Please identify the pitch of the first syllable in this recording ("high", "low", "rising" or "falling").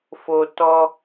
high